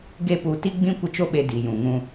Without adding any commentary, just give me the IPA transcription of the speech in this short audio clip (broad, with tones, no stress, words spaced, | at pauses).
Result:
ɡe˦pu˧ ti˦ɡ͡bĩ˦ kʷə˦t͡ʃo˦ɓe˧ di˨jũ˨ ŋũ˧